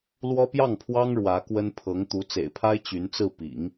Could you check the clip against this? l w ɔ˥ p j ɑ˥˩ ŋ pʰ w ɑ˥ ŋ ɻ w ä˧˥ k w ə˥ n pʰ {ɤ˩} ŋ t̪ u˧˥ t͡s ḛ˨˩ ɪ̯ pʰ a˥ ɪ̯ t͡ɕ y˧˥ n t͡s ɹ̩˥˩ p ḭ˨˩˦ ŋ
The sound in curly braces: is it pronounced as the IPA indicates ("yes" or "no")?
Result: no